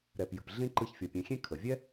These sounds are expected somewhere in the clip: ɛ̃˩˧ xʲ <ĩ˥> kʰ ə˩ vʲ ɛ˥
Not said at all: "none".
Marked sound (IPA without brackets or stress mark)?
ẽ˥